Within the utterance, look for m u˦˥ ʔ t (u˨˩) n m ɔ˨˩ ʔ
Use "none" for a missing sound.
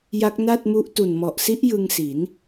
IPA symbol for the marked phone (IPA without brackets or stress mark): u˨˩